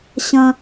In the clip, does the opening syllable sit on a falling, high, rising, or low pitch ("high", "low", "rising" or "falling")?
high